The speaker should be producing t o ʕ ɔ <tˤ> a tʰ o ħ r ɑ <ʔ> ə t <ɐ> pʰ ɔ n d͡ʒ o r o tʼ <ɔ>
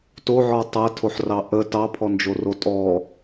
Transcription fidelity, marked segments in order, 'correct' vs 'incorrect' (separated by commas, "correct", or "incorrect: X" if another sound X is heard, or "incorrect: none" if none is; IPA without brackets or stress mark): correct, correct, incorrect: ɑ, correct